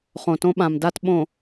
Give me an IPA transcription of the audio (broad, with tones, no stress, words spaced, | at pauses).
χõ˨tõ˦ɓã˨mda˦t ɓõ˨